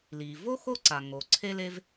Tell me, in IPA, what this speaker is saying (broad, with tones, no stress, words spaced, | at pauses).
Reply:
li˩ vo˥ xo˥ǀa˩ ŋo˩ ǀʰe˥le˥v